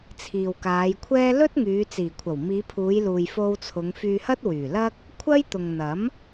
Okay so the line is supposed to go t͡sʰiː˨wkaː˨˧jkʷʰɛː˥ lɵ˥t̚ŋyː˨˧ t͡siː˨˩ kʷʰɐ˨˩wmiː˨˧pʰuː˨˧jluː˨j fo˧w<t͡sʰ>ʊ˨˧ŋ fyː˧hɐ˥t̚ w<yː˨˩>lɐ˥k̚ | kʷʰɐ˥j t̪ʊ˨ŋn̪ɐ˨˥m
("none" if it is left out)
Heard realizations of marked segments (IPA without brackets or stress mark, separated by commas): t͡sʰ, yː˨˩